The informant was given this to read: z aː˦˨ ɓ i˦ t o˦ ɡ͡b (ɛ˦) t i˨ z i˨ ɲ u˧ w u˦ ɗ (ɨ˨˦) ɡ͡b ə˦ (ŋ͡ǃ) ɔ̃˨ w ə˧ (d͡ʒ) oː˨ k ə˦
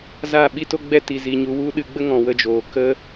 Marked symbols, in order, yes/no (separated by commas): yes, no, no, yes